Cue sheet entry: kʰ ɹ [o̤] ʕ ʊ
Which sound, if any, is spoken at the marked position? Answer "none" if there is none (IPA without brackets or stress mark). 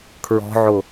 ɔ̤